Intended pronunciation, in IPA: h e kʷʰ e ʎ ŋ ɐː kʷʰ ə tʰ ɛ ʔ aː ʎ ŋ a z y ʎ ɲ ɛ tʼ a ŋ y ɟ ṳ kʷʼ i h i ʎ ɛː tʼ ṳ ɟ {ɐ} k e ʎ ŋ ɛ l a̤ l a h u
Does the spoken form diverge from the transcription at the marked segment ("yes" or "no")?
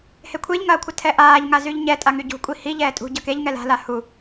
no